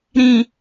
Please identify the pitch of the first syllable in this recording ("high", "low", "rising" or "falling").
low